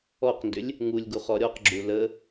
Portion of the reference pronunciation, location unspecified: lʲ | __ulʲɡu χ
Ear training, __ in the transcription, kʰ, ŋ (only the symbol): ŋ